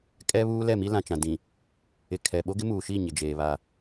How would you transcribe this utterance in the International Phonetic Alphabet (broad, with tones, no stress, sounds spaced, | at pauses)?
kʼ ɛ˦ β uː˦ l ɛ˦˨ m i˦ l ã˨ t͡ʃ ã˨ d ĩ˨ | ɪ˨ kʰ ɛ˨ ɓ o˦ ɡ ɪ˦ m uː˨ ʃ i˦˨ ɲ ɪ˨ d͡ʒ eː˨ β a˦˨